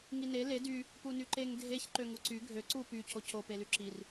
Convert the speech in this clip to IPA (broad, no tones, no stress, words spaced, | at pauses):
ŋine le dy | punyǃeŋ dʱeç ǃøŋuǀy ɡʱø ǀu py cʰocʰo pelyǁir